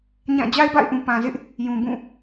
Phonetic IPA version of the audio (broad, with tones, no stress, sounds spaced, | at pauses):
ɲ ã˦˨ d͡ʑ a˦ ɪ̯ b a̰˦˨ ɪ̯ ʔ ũ˨ p ã˨ z ɪ˦ ʔ | j ũ˨ b ũ˦˨